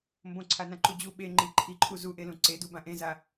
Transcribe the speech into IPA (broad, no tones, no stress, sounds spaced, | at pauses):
m b õ ǀʰ a n ã ǃ u d͡ʑ u ɓ e ŋ͡ǃ i ǃʰ i ǃʰ u z u ʔ e l ũ ǀ e d u b ã ʔ ẽ z a